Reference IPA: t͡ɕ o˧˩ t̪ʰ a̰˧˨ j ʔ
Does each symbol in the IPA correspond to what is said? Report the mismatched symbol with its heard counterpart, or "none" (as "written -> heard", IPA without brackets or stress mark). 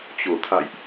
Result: none